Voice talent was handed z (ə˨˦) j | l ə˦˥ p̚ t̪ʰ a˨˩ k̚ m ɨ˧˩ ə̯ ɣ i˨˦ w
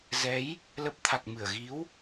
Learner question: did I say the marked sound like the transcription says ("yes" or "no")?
no